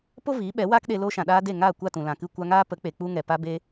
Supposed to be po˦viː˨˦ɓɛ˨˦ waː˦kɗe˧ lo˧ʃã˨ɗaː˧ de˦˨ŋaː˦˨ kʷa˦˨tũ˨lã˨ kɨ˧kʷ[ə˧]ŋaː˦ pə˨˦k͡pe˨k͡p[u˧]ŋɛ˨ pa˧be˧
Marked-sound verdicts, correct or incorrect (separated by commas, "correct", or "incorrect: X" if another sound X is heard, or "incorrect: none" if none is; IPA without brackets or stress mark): incorrect: a˧, correct